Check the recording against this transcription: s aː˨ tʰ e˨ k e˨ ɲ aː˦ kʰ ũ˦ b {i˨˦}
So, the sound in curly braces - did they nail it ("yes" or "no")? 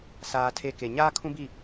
no